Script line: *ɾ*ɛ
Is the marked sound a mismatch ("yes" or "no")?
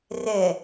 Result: yes